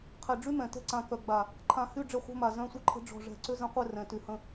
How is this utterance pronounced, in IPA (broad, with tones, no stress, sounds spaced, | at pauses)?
qʰ ɛ˨ ɖ͡ʐ y˦ m ɛ̃˨ t ɛ̤˦ ǀ ã˨ k œ˨ ɡ͡b a˨ | ǃʰ ã˨ h y˦˨ ɖ͡ʐ ɘ˦˨ χʷ ɛ̤˦ m a˨ z œ̃˦˨ sʷ ɘ˦ ǃʰ ə̤˦ ɖ͡ʐ ɔ̤˦˨ ʐ ɛ̤˨ ǀ ʏ˦ z ə̃˨˦ qʷ ɛ˦˨ r ɛ̃˨ t y˨ h ə̃˦